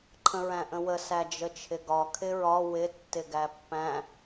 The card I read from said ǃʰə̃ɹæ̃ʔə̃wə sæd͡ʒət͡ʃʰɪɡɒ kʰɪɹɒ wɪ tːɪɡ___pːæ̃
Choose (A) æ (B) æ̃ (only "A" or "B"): A